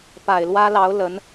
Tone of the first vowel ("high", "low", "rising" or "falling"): low